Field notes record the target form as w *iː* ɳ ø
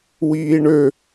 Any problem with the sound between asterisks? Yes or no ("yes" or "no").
no